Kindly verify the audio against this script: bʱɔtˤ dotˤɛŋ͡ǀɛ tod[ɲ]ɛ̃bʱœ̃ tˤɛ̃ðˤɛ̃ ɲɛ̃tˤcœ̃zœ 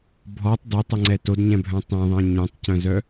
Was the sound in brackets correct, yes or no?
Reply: yes